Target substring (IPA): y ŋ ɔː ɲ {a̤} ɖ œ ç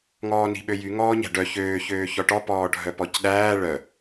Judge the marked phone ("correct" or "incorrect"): incorrect